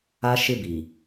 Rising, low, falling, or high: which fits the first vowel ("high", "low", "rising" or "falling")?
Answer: high